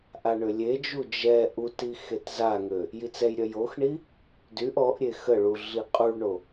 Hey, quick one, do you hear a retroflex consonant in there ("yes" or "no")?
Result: yes